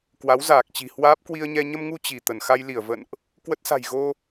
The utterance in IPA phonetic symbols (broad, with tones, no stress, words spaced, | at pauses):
kwa˨˦wzaː˨˩k̚t͡ɕi̤˨˩hwaː˦˥p̚ kwi˧ə̯ɲɛ˧ ɲə˧mŋu˧ t͡ɕi˧˩t̪ə˧˩n xa˧jli˧˩ə̯və̰˧˨nʔ | kwə˦˥t̚sa̤˨˩jɣo˧